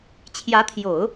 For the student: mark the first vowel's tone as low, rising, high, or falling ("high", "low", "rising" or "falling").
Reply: rising